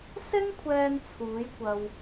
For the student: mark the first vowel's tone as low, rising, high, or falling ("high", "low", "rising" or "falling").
high